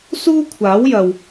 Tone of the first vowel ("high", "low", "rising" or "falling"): high